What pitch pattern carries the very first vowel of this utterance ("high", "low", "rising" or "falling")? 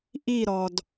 falling